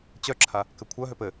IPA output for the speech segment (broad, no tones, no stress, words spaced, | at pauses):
t͡ɕœǁʰa | kɘkʷʰœɦøp ɘ